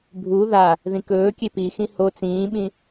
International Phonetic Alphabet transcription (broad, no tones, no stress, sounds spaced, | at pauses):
bʱ u ð a | ð ĩ k ɵː kʲ e p i x ĩ h o t͡s ĩː ɓ ĩ